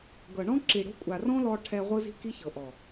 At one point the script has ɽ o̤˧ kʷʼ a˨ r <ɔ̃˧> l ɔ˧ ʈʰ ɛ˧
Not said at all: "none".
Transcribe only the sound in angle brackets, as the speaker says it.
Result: ɔ̃˦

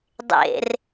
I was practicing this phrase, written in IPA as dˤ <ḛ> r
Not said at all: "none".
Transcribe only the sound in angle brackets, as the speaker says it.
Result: ḛ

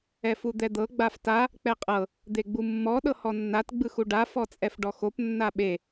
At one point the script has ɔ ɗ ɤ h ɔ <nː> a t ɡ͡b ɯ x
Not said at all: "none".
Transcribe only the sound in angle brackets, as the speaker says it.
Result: nː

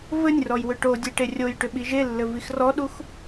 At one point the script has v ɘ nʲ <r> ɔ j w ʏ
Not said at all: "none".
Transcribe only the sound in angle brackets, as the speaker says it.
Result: r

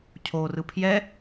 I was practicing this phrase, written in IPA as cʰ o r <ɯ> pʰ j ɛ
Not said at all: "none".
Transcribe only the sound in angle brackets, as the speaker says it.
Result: ɯ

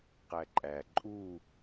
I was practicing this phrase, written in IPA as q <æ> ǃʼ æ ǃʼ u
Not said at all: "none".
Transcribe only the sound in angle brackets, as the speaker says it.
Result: æ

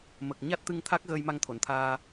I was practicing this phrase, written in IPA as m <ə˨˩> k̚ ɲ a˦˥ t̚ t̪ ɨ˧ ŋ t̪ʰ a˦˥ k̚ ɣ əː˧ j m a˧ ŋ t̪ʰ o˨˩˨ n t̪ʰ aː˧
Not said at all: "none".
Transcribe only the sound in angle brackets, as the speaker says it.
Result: ə˨˩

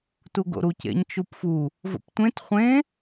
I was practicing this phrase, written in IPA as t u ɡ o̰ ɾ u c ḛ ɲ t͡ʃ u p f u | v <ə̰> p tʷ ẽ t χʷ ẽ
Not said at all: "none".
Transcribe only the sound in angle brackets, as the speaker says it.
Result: ə̰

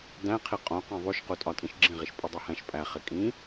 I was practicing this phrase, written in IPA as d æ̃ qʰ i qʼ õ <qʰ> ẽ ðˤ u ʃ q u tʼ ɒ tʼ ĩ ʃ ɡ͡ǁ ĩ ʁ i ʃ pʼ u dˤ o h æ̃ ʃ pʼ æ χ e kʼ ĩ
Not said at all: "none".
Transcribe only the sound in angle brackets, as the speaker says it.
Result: q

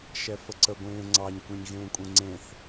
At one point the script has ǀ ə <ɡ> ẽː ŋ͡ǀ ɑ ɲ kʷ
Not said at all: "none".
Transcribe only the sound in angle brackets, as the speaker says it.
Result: ɡʷ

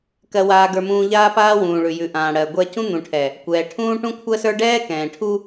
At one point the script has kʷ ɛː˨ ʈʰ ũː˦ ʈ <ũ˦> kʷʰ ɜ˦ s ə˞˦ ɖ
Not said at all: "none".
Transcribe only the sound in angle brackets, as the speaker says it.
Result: ũ˦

